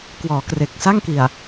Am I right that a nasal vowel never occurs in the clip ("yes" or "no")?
yes